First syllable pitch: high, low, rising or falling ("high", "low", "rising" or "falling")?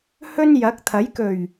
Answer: high